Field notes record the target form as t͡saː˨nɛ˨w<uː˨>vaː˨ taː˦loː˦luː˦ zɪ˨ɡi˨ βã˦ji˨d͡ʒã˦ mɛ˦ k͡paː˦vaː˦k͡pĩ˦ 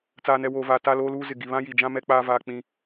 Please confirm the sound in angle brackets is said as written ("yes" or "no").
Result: no